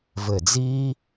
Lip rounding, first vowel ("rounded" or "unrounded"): unrounded